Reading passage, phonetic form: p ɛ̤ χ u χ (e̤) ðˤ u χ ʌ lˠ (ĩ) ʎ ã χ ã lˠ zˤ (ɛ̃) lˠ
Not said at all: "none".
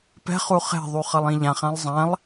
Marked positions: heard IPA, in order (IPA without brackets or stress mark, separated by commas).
e̤, ĩ, ɛ̃